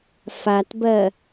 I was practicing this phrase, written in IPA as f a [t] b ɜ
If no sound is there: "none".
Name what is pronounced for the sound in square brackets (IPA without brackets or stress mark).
t